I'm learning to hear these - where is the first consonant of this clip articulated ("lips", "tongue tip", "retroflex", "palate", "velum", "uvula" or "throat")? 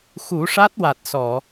velum